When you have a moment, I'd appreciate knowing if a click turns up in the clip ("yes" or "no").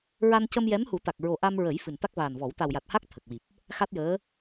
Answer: no